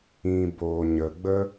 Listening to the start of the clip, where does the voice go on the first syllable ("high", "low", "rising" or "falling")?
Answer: low